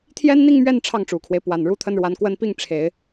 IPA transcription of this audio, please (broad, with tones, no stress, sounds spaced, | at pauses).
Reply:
t̪ʰ j ɛ˥ n n̪ i˥˧ ŋ m ɥ ɛ˥˧ n ʈ͡ʂʰ ɑ˥˩ ŋ ʈ͡ʂ u˨˩ kʰ w e˦ ɪ̯ p w a˨˩ n ɻ u˥ t̪ʰ ə˥ n ɻ w a˧˥ n k w ə˥ n p i˥˩ ŋ ʈ͡ʂʰ e˨˩˦ ɪ̯